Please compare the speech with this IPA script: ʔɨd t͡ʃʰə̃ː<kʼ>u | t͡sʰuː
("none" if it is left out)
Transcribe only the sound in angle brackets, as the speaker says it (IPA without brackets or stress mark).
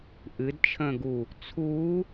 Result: ɡ